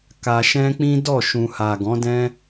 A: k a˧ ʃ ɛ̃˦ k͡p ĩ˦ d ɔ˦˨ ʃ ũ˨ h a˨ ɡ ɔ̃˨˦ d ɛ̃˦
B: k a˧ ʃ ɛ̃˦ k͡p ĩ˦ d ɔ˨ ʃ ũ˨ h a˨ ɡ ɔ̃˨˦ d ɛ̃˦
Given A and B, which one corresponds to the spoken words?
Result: A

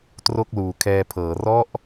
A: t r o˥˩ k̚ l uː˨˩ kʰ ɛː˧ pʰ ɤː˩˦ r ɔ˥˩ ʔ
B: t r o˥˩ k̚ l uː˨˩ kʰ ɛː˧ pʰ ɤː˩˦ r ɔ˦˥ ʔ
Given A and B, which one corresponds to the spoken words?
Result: B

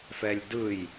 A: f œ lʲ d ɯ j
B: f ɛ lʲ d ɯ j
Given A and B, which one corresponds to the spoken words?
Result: B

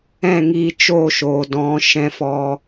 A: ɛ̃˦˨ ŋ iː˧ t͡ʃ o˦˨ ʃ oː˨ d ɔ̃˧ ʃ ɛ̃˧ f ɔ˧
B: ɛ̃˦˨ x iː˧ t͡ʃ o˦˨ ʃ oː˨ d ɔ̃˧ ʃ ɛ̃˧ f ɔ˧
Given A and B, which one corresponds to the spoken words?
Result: A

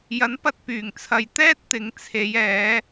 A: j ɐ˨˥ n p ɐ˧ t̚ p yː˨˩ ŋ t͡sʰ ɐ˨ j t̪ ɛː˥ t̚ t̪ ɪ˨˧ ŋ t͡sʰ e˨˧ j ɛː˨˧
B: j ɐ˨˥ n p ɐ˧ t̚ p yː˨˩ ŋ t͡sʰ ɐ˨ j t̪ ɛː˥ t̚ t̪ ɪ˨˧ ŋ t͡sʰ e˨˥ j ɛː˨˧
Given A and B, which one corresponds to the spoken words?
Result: A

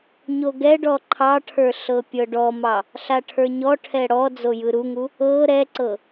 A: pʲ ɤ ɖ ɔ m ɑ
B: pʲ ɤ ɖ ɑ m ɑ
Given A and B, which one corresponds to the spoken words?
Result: A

